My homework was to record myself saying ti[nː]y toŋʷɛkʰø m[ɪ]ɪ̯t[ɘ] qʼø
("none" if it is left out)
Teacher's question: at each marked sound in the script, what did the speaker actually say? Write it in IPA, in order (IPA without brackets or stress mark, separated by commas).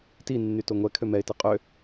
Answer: nː, ɛ, ɘ